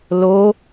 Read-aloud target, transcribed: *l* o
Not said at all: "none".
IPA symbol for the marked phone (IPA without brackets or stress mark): l